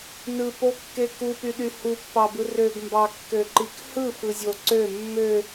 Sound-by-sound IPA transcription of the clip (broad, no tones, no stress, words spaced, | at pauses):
nɯpokːe kupyɗy hupːɑbɯ røɡmbɑkːøǃik hɯfɯzʲo ǀø mːø